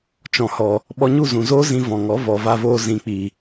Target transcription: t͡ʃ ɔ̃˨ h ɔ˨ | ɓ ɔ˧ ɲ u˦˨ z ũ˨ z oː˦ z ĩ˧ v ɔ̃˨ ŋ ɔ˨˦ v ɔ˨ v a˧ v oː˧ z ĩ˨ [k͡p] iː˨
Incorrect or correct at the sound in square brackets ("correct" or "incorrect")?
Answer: correct